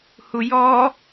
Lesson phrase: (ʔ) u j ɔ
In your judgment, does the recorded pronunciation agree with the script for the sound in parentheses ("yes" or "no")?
no